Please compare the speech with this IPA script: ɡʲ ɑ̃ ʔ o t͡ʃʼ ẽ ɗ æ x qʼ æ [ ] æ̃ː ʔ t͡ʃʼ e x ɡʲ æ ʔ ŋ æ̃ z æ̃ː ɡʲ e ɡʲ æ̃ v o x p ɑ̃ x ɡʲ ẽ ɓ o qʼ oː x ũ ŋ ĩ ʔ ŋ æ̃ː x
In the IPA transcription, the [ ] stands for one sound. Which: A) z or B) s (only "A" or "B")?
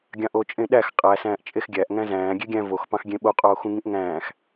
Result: B